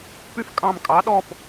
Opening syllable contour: high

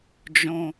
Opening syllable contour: low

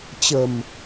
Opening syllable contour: low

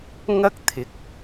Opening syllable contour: high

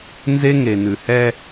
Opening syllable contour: high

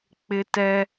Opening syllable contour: high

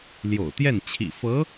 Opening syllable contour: low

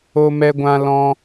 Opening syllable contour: high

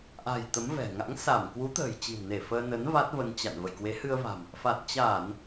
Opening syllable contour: low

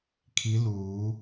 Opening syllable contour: rising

